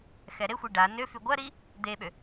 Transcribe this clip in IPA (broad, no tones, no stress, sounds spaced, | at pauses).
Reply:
x ɛ ɾ e xʷ i ɖ a n ø f y ɡʷ ɐ ɾ i | d̪ e ɓ ø